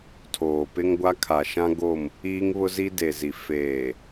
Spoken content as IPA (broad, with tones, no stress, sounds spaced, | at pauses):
tʰ oː˨ p ɪ˦ ŋ ɡʷ a˦ kʰ a˨ ʃ ã˦ ɡ o˦˨ m | iː˦ ŋ β ʊ˦ z i˦ d e˨ z i˨ f eː˨